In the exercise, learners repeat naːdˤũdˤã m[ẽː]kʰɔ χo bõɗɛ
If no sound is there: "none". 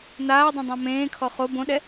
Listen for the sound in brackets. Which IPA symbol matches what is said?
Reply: ẽː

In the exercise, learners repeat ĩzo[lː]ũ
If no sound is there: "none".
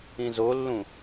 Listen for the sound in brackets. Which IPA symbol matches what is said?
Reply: lː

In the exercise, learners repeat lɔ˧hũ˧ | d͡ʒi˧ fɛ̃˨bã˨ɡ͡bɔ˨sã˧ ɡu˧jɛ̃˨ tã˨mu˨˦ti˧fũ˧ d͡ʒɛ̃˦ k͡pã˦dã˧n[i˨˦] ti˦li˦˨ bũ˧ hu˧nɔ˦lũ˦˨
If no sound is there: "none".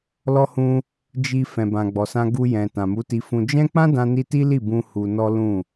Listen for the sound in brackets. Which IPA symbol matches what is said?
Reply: i˧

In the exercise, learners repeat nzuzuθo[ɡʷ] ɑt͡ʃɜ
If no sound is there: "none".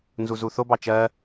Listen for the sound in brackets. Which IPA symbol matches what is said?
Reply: b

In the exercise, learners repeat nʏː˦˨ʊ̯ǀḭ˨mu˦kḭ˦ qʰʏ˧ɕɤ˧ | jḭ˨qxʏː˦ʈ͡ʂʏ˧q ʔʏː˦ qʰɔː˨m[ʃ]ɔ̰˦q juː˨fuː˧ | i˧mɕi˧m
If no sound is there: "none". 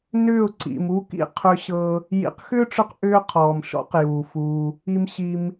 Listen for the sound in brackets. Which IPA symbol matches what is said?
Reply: ʃ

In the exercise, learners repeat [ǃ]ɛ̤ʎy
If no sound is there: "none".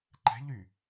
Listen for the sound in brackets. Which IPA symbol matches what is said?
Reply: ǃ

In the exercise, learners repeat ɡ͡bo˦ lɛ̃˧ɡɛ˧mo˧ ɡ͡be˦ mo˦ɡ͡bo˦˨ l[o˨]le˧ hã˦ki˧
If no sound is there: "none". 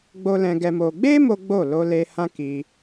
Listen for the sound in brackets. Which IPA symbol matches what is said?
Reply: o˧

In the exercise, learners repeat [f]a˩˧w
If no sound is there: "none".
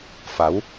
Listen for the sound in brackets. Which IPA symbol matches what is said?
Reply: f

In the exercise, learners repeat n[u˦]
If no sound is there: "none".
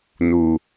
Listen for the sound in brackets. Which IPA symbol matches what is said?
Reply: u˨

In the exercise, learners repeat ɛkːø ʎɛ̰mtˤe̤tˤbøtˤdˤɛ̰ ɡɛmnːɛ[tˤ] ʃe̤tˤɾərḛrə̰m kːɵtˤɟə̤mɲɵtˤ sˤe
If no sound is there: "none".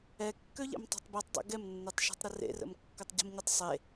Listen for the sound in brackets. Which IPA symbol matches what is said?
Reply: tˤ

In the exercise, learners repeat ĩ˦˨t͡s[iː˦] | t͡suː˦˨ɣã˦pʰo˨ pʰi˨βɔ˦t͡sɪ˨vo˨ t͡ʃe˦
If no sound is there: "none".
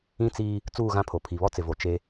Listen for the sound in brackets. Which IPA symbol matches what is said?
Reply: iː˦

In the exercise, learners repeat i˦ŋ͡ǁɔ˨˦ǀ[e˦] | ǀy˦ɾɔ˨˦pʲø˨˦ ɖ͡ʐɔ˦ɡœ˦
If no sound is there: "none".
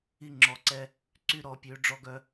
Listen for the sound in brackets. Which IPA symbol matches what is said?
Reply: ɛ˦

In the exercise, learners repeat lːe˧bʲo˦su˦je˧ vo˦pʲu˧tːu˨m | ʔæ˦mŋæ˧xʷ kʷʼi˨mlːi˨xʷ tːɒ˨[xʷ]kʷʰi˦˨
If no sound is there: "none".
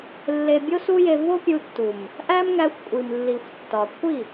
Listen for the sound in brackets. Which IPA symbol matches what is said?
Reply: none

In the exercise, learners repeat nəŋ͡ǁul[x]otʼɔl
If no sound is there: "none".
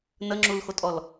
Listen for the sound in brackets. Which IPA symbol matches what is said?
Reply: x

